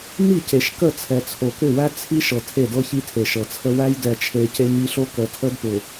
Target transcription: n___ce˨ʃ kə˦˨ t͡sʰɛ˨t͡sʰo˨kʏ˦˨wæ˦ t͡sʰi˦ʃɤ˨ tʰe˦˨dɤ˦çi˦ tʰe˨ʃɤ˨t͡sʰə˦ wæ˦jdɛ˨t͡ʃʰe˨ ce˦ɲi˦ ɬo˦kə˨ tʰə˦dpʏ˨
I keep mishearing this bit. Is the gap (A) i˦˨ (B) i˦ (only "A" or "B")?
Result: A